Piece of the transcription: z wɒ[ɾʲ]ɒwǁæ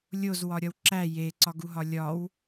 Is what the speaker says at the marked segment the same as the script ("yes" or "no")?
yes